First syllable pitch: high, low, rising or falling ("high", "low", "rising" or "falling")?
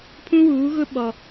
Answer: high